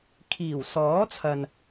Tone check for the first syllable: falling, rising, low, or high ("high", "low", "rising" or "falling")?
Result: low